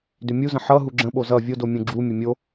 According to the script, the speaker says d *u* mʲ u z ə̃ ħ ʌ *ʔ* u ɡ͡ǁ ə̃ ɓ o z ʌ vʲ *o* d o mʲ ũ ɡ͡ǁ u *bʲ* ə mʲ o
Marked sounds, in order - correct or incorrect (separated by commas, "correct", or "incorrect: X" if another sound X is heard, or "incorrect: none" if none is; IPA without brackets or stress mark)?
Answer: incorrect: ʏ, incorrect: ɦ, correct, incorrect: mʲ